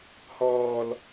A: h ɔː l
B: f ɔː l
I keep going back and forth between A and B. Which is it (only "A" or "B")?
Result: A